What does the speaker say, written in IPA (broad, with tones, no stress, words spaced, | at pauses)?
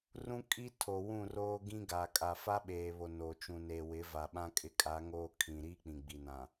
rũ˦ kʼi˦tʰo˨ wũ˦˨roː˦ ɡĩ˦ɡaː˨ kʼa˨fa˦ɓeː˨βo˨ no˨ t͡ʃũ˨neː˨ wɪ˨˦va˨ɓã˦ kʼɪ˦kʼa˨˦ŋoː˦ kʰĩ˨ɾi˦ k͡pĩ˨ɡ͡bi˨nã˨